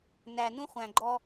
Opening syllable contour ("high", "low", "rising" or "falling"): low